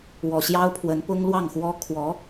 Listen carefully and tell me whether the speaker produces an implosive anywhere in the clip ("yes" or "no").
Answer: no